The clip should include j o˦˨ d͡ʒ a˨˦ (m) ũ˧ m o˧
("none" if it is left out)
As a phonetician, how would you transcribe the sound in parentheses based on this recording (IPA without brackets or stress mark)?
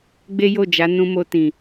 n